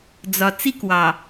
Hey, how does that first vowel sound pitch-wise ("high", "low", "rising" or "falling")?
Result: low